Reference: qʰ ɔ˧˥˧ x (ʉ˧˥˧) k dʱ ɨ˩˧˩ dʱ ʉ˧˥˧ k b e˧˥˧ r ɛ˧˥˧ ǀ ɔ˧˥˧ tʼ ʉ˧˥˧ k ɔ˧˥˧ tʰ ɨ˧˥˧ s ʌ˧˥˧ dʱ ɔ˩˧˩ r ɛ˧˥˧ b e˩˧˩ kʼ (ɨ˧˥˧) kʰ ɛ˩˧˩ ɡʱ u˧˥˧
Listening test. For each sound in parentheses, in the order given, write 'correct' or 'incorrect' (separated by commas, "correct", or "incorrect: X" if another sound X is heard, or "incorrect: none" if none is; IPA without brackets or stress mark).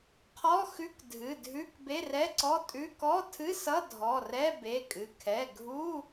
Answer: correct, incorrect: ɨ˩˧˩